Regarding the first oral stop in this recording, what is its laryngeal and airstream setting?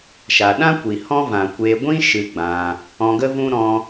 implosive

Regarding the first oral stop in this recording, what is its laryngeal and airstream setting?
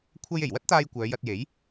aspirated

